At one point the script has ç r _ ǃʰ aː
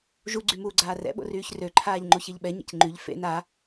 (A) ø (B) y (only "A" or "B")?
A